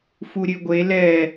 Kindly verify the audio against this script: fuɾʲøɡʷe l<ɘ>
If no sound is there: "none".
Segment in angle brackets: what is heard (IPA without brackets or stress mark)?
ɛ